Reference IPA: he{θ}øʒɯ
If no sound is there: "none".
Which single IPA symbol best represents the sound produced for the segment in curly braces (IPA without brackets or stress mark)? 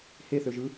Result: θ